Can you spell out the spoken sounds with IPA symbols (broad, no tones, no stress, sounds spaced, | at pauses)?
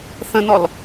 θ ə̃ n ɔ l